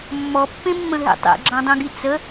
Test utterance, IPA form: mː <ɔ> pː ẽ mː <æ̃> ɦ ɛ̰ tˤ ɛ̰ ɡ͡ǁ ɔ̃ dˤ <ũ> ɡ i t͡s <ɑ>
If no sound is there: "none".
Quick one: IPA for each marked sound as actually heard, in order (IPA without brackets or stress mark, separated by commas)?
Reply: ɔ, ə̃, ũ, ə